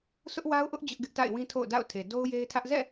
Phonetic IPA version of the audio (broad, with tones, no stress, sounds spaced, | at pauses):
sʰ ʊ˦ ʔ w a˦ ʊ̯ ʔ ʊ˦ ʔ d͡ʑ ʊ˦ ʔ ɡ ɪ˦ ʔ t a̰˦˨ ɪ̯ w ĩ˦ tʰ o̰˦˨ ʊ̯ d a̰˦˨ ʊ̯ tʰ e˨ d o˦ ʊ̯ j e˦ ɪ̯ tʰ ä˦ ʔ z ɛ̰˦˨